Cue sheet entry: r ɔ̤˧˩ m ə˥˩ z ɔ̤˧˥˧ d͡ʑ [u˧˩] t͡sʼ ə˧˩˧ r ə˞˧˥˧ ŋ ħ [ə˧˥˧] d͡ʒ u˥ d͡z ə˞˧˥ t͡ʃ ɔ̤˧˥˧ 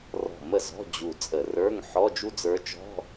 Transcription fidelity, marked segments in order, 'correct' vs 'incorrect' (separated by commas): correct, incorrect